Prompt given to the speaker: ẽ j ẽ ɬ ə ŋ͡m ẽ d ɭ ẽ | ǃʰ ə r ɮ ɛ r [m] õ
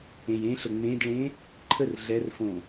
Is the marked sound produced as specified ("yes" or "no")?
no